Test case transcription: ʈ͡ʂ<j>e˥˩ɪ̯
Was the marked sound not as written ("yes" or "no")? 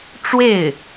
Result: yes